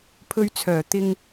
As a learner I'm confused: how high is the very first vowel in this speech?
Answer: mid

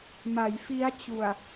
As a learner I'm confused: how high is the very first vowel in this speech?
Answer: low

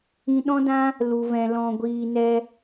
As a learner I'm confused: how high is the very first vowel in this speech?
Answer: high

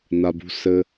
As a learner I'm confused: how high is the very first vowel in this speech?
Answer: low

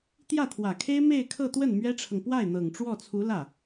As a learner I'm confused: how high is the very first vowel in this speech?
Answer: low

